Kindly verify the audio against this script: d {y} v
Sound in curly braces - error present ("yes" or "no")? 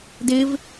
yes